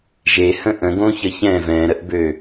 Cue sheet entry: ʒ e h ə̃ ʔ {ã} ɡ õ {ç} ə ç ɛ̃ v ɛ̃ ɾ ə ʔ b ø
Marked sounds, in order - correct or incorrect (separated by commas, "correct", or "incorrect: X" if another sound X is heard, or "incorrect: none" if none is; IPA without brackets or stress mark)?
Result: incorrect: ə̃, correct